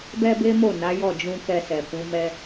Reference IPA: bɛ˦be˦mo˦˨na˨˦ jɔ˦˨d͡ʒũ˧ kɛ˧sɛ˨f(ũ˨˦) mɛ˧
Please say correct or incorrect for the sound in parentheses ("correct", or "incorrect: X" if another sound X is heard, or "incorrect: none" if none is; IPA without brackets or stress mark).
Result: correct